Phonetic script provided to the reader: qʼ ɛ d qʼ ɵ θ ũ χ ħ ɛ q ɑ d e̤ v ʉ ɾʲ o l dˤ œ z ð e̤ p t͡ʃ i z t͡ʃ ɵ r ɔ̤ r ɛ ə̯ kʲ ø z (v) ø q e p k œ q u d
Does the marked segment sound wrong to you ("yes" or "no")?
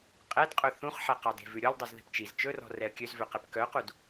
no